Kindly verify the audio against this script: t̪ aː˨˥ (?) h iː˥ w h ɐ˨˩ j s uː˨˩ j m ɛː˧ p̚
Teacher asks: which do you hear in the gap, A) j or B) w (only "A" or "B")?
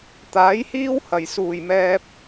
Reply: A